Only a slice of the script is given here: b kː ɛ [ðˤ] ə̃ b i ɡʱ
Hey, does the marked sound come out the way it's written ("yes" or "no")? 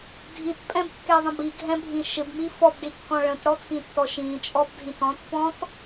yes